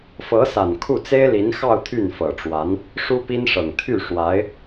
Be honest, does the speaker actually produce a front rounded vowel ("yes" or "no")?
yes